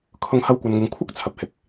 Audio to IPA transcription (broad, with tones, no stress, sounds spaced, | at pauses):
kʰ ʊ˧ ŋ h ɐ˧ w kʷ ɐ˨ n ŋ ɪ˨ ŋ kʷʰ ɐ˥ k̚ t͡sʰ ɐ˨ p̚ h ɪ˧ k̚